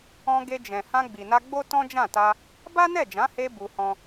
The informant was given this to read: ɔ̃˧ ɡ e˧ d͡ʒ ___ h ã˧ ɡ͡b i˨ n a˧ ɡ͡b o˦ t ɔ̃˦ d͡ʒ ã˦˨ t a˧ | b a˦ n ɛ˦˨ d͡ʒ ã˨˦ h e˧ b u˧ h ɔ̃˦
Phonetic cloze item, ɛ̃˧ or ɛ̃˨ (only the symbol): ɛ̃˨